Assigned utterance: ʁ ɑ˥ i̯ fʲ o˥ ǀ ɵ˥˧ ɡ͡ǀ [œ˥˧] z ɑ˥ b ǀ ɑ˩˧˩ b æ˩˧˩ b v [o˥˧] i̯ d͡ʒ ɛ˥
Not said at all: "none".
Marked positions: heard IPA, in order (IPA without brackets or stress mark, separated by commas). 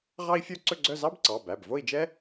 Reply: œ˥˧, o˥˧